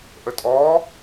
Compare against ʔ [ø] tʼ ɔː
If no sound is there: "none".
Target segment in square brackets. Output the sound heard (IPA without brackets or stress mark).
ə